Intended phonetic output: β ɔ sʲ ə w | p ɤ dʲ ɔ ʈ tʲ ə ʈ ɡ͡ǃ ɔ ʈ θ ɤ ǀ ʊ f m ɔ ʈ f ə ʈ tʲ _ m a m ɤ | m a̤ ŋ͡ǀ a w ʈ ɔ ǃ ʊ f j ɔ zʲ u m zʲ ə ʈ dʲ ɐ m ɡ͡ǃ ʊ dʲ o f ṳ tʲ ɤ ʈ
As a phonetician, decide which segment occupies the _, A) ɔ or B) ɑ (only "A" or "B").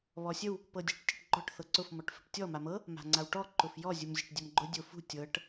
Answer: A